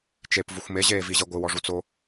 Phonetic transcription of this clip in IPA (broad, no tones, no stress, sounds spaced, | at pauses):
t͡ʃ e p v u xʷ m e ʑ eː v i ʑ e ɡʷ ɨ w ɔ ʐ u t͡s o